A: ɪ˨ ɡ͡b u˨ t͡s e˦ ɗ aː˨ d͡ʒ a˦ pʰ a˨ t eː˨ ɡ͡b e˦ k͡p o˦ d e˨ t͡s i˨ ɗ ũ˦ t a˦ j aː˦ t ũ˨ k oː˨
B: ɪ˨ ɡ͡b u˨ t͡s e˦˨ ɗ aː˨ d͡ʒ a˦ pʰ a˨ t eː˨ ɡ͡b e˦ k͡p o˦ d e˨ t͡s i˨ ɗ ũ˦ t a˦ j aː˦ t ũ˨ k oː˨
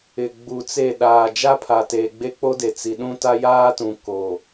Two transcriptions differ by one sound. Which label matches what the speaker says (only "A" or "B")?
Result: B